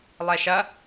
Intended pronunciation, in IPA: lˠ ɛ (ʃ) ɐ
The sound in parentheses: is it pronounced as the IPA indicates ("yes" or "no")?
yes